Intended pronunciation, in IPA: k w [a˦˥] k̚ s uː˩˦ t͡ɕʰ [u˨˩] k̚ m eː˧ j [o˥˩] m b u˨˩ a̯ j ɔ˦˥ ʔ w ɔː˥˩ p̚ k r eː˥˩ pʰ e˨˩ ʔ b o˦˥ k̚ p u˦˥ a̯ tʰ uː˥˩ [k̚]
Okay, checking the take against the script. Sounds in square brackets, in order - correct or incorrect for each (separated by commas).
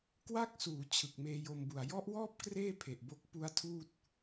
correct, incorrect, incorrect, incorrect